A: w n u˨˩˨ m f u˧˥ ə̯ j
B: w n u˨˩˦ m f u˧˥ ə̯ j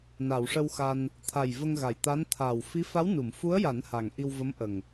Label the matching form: A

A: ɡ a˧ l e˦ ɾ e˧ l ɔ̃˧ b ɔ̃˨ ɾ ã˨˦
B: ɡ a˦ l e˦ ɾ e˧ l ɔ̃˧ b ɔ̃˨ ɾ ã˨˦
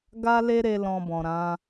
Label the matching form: B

